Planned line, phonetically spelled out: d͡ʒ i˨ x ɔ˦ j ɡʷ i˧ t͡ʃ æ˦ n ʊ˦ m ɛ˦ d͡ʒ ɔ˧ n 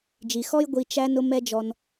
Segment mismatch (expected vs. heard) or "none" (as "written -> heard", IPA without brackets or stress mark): none